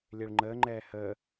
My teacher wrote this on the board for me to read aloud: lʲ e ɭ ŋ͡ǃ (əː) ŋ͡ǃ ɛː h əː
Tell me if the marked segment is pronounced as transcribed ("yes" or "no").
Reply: yes